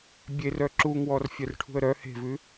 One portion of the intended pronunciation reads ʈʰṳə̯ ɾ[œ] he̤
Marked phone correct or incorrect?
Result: correct